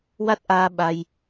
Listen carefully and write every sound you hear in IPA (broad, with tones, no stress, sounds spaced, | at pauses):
w a˦˥ t̚ ʔ aː˧ ɓ a˧ j